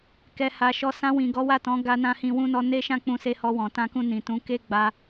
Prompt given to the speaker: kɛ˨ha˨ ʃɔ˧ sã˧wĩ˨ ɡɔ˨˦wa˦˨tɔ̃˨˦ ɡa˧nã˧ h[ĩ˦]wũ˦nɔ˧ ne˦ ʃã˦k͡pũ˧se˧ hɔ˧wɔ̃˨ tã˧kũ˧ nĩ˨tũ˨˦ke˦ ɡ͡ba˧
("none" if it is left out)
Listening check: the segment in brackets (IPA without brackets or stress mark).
ĩ˧